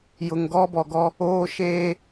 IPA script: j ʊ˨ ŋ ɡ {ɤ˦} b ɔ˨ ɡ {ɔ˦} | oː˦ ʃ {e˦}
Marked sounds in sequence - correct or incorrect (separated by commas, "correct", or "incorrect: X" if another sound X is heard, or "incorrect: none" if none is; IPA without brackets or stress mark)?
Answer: incorrect: ɔ˦, correct, incorrect: eː˦